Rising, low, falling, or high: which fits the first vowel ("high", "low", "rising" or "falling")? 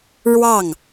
falling